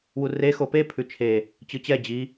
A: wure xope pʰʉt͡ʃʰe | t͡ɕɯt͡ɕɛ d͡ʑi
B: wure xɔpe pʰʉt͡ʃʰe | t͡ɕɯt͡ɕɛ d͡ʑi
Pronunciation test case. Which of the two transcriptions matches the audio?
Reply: A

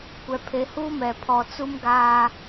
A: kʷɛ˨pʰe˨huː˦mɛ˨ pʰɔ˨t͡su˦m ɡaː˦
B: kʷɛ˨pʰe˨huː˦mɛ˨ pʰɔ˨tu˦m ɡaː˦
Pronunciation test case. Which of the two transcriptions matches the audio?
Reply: A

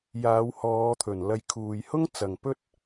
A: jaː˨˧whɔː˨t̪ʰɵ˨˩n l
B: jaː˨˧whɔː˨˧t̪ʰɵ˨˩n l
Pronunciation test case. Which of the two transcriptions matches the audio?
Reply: B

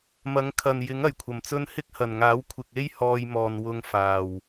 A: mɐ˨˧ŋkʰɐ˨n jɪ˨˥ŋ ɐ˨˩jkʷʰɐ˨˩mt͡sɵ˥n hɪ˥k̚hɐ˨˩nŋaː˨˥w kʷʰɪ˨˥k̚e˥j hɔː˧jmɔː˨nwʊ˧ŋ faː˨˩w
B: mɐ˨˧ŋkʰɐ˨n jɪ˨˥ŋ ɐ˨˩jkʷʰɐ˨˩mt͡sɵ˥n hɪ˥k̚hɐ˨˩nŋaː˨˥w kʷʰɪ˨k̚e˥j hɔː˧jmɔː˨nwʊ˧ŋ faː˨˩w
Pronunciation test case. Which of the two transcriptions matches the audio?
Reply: B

